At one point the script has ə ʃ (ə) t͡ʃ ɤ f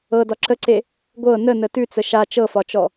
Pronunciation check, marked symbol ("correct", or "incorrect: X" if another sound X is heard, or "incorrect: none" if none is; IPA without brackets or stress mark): incorrect: a